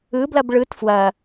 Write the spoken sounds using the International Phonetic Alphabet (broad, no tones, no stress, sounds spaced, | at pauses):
ɯ b l ɐ b ɭ ɯ t f w ɐ